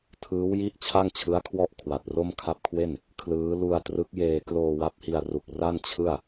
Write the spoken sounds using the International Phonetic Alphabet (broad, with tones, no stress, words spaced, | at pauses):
tʰɯː˦˥wji˥˩ʔ t͡ɕʰa˥˩ŋt͡ɕʰɯ˦˥a̯kʰwɔ˥˩ʔ kʰwa˨˩t̚ro˥˩m kʰa˦˥p̚kʰwe˥˩n | kʰlɯː˦˥ lu˧a̯ trɯ˦˥k̚jeː˧ kloː˧ wa˦˥p̚hi˧a̯ru˨˩k̚ ra˥˩nt͡ɕʰɯ˥˩a̯